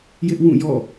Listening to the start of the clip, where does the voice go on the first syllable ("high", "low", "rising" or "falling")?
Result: high